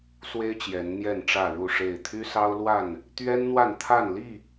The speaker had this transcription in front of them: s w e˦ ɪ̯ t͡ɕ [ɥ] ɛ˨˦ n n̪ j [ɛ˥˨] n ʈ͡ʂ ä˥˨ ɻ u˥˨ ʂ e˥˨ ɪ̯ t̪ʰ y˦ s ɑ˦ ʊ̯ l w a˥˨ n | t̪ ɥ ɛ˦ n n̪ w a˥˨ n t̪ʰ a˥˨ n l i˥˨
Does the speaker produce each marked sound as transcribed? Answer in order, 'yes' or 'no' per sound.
no, yes

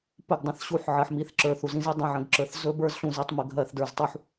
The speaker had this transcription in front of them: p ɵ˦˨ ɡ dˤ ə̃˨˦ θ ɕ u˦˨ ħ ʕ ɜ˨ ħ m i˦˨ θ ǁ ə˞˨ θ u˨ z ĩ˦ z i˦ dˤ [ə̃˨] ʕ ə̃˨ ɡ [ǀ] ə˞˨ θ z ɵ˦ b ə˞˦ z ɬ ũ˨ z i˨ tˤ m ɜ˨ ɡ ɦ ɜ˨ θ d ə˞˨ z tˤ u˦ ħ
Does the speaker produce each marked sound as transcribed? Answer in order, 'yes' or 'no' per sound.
no, no

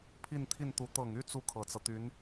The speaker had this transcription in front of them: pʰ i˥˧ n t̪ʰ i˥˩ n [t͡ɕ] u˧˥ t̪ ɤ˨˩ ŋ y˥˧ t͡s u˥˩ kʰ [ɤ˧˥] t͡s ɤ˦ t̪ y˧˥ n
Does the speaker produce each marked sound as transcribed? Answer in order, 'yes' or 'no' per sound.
no, no

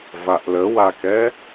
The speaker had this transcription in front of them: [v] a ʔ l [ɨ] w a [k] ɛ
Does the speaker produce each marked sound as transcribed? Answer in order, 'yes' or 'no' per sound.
yes, no, yes

